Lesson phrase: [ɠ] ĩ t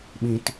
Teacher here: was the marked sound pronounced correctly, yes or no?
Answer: no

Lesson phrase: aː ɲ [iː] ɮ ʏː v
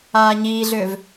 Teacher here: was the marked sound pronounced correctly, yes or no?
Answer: yes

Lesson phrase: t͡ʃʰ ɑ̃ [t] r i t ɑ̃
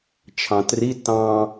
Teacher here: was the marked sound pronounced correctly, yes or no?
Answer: yes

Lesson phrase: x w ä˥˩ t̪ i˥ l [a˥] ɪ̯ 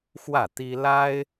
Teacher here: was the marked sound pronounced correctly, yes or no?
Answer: yes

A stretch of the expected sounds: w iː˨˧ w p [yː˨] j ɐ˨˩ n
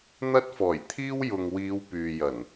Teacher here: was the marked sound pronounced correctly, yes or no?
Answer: yes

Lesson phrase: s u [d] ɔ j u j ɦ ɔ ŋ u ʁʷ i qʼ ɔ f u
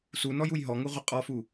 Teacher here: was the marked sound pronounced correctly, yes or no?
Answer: no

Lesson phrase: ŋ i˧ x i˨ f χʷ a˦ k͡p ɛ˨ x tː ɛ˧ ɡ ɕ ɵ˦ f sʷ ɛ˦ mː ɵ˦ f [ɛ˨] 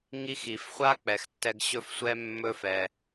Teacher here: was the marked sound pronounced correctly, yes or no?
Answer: no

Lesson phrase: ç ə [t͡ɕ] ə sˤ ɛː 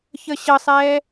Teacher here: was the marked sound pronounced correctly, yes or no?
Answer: no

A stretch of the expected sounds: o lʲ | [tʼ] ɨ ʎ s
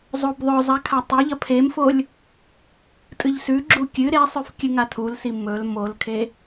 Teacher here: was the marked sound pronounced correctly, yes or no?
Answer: yes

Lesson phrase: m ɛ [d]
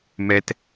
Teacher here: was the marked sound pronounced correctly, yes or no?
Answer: no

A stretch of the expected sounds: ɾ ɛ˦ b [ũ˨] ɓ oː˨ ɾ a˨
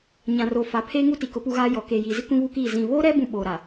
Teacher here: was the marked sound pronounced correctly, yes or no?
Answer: no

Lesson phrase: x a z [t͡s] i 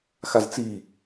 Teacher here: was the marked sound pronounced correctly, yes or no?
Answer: yes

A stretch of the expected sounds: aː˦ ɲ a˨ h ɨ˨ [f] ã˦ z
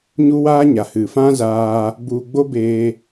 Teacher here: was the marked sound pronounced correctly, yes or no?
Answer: yes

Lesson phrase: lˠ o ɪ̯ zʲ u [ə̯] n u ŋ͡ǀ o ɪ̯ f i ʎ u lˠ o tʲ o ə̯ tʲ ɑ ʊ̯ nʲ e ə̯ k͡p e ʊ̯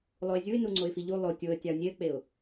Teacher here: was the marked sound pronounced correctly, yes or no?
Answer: no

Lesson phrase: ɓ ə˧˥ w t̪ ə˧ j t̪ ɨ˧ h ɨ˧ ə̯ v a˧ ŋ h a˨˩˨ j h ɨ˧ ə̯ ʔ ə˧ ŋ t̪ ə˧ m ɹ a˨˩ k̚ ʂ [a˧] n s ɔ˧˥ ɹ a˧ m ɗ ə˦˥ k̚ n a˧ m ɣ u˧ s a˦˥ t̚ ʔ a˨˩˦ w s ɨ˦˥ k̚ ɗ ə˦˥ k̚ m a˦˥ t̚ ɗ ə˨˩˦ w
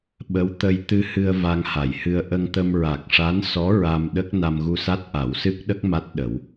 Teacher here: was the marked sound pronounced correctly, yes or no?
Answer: no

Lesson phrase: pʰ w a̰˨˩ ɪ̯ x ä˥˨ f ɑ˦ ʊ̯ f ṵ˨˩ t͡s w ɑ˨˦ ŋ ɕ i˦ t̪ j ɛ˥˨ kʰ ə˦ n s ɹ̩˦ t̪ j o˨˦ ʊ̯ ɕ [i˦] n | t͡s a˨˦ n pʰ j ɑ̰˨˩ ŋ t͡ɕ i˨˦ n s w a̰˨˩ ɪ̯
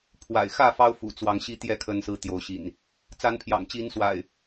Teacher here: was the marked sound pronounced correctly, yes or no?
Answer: no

